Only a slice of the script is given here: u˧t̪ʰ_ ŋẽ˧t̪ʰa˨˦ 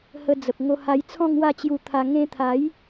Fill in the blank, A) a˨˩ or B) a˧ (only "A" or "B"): B